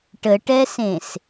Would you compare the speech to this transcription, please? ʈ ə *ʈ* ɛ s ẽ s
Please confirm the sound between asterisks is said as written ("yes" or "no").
yes